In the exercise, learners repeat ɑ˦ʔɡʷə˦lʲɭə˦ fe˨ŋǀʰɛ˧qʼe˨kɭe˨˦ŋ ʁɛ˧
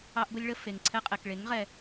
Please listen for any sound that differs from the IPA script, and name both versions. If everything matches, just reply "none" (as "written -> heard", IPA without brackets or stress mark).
none